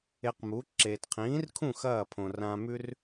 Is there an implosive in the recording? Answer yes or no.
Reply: no